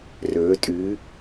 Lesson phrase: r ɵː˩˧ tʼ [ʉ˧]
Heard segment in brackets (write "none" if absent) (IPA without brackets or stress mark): ʉ˩˧